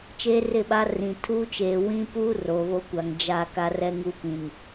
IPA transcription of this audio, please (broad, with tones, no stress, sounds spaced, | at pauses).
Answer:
t͡ʃ eː˦ r ɪ˦˨ ɓ a˦ r ĩ˨ tʰ uː˦ t͡ʃ eː˨ w ĩ˦ p u˦ r o˨ β o˦ kʷ a˨ ŋ d͡ʒ a˦˨ k a˦ r ɛ˦ ŋ u˦ p ĩ˨ n